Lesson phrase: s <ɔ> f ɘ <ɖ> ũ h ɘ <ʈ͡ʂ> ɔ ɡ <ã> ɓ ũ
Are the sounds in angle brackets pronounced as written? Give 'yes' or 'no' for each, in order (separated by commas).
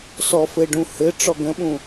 yes, yes, yes, no